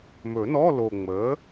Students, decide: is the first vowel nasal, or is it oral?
oral